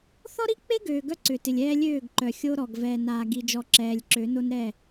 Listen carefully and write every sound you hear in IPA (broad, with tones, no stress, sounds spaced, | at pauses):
θ ɔ˦ ɾ i˦ k͡p e˦ ɡ øː˨ ɡ œ˦ ǀ ʏ˨ t ɪ˨ lʲ ɛː˦ lʲ øː˦˨ ɡ ǃ œ˨ xʲ o˦ ɾ ɔ˨ ɡ v ɛː˨ n aː˨ ɡ i˨ d͡ʒ ɔ˨ ǁ ɛː˨ lʲ ǁ ø˨˦ n o˦ n ɾ ɛ˦˨